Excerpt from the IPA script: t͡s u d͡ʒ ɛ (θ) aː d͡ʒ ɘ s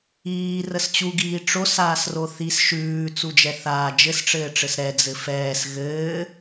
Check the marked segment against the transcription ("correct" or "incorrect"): correct